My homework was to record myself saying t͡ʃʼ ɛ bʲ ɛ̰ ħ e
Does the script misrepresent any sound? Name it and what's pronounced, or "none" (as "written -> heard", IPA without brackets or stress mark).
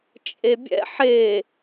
ɛ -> e